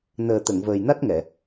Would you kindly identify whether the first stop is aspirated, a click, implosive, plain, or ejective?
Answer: plain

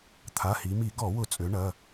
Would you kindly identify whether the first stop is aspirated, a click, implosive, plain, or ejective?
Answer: aspirated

